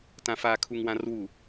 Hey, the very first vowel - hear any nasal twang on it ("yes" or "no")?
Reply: yes